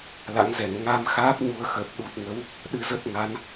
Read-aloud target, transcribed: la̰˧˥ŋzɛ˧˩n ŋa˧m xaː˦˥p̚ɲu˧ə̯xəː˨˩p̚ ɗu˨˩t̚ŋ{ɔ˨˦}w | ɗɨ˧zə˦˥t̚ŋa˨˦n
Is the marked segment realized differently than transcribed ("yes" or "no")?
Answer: yes